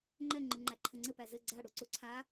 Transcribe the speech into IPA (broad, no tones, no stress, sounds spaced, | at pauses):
ŋ͡ǃ ɛ ŋ͡ǃ ɯ ŋ͡ǃ æ ǃʰ ɘ ŋ͡ǀ ɘ p æ z ɘ ɡ͡ǀ a ɽ u ǀ u ǀʰ a